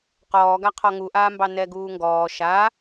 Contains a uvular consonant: yes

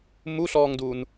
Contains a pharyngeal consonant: no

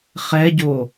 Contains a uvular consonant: yes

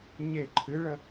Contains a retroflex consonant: yes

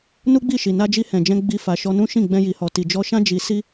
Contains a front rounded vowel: no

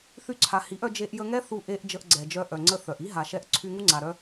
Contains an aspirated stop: yes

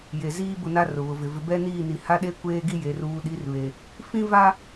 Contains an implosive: yes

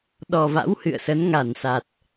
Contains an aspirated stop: no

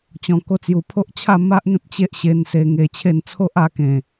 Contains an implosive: no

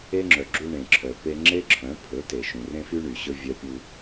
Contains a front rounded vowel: yes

